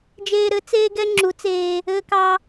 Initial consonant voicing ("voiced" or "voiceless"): voiced